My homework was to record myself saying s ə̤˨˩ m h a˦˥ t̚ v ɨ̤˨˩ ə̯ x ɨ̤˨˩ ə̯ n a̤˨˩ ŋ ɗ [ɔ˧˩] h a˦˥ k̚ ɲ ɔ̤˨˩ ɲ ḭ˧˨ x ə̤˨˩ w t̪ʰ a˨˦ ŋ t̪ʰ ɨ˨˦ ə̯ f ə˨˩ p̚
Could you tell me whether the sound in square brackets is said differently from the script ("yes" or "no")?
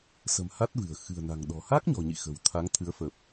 yes